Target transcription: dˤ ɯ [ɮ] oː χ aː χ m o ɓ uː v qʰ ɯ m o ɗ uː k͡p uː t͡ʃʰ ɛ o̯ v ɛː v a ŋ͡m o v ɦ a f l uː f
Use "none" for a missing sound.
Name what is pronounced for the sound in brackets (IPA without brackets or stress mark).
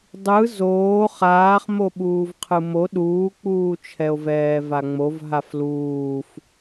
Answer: z